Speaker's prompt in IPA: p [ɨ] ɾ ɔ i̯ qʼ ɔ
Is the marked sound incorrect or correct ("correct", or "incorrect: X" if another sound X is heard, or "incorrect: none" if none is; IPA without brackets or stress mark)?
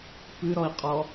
correct